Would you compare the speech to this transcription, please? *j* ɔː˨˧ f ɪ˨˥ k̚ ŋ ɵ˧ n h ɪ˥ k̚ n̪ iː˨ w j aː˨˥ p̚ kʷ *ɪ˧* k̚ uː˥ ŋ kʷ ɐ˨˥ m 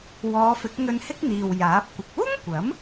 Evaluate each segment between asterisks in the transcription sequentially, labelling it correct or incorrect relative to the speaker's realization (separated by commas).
incorrect, incorrect